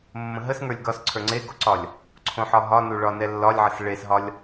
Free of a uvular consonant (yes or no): yes